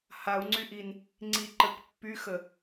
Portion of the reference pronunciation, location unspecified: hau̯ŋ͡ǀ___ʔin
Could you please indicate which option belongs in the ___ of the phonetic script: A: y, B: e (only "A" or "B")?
A